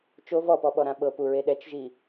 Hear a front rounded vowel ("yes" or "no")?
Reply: no